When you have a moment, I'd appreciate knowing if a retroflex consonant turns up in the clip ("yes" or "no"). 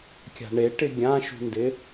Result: yes